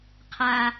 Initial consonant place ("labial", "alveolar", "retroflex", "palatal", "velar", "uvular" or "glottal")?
uvular